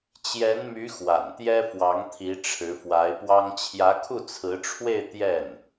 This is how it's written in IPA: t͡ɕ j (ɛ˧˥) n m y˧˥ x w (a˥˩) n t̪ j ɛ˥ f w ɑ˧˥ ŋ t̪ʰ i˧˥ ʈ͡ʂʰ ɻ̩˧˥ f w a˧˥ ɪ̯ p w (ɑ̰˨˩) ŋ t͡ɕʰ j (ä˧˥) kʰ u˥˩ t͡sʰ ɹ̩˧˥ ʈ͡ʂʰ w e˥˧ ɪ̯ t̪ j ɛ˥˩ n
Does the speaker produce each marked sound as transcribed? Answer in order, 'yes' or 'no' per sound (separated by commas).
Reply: yes, no, no, yes